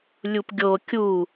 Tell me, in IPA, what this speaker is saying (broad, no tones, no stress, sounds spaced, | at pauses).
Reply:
lʲ u p ɡʲ o kʲ u